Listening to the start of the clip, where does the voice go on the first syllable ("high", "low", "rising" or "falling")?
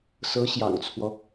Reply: rising